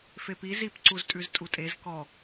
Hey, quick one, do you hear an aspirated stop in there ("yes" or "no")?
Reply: no